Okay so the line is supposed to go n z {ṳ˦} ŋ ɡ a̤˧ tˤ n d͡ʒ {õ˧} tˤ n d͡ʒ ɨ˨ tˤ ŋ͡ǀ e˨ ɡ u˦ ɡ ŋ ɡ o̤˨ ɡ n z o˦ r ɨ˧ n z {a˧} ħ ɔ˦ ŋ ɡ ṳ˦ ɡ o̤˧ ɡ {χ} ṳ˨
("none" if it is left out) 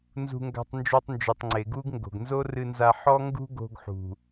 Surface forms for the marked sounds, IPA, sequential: ṳ˧, o˧, a˧, ħ

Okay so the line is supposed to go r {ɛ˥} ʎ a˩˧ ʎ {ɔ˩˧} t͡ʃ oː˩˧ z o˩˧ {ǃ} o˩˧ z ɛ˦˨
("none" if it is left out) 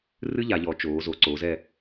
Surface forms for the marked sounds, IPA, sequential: ɨ˥, ɔ˩˧, ǀ

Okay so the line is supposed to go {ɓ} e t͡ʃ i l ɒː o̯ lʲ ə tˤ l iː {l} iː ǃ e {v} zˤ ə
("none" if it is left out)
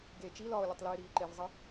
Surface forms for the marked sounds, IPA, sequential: ɡ, ɾ, v

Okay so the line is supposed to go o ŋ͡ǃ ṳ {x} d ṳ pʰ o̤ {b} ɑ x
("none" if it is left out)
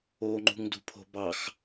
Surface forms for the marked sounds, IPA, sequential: ŋ, b

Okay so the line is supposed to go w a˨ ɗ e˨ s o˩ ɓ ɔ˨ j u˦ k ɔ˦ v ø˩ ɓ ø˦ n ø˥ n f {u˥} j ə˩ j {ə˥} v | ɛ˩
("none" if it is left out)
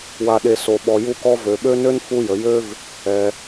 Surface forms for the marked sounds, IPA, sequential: u˦, ø˥

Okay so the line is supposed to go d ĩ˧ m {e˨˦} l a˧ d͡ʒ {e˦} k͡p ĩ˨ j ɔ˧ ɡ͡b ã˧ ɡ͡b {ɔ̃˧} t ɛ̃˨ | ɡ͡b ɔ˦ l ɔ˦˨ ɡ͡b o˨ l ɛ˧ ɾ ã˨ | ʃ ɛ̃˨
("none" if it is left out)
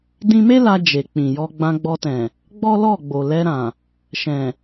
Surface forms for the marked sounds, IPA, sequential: e˦, e˨, ɔ˧

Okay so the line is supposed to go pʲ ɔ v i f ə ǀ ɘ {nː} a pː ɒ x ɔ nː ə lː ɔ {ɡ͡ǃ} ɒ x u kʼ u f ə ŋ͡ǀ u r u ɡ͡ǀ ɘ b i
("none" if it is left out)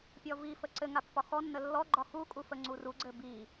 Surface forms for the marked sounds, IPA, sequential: ŋ, ɡ͡ǃ

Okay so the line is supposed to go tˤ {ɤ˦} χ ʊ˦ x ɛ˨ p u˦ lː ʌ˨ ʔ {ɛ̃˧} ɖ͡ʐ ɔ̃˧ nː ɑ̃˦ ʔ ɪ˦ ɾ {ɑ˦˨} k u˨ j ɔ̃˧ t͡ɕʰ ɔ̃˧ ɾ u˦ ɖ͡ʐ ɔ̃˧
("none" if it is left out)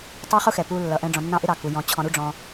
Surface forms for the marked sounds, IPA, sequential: ə˞˦, ɛ̃˧, ɑ˦˨

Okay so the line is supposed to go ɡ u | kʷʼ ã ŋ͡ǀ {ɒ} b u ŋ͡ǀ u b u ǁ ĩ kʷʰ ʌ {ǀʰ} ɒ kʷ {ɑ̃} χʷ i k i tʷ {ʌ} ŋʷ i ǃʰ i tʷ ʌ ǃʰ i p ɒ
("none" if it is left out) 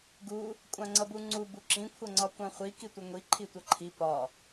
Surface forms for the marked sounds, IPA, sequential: ʌ, ŋ͡ǀ, ã, ʌ

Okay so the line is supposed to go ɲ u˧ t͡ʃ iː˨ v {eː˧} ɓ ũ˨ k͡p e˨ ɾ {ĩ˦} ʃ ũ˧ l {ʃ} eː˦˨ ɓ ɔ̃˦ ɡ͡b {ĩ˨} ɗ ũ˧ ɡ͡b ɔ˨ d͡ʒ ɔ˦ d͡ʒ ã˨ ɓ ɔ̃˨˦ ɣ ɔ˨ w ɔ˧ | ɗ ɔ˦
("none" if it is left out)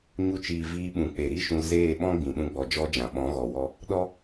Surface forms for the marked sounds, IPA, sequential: iː˧, i˦, z, ĩ˨

